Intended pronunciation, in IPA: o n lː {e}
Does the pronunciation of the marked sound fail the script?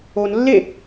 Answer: no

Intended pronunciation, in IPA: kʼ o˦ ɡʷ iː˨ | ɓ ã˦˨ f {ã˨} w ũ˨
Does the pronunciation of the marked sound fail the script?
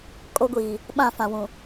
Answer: no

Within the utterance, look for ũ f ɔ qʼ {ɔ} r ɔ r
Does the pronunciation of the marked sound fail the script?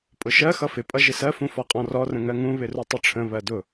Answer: yes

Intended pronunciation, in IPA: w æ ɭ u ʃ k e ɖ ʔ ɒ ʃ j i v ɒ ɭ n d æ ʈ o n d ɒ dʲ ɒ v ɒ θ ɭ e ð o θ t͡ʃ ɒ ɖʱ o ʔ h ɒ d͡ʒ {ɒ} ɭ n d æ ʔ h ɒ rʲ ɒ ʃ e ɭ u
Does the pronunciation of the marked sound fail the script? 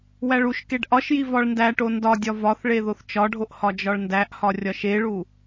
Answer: no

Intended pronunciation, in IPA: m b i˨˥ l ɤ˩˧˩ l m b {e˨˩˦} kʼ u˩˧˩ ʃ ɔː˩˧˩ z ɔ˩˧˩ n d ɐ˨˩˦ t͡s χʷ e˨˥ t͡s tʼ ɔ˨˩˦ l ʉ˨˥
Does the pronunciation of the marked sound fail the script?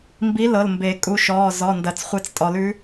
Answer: no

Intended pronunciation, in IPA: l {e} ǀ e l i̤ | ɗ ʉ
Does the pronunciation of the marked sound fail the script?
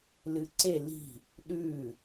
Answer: yes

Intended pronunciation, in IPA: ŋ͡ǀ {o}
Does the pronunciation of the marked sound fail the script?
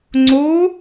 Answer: no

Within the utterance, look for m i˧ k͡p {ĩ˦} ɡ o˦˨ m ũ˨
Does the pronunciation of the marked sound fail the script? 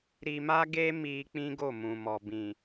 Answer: no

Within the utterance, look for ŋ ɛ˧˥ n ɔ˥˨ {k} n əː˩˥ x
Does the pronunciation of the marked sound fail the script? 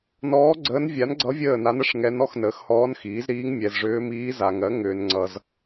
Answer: yes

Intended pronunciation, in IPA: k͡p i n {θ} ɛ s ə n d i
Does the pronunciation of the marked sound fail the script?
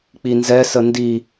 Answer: yes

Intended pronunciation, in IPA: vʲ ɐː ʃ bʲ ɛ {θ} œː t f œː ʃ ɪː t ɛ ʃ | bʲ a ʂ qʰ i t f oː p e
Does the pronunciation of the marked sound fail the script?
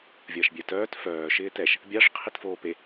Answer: yes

